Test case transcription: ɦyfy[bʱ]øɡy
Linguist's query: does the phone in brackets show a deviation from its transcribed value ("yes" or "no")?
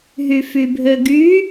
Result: no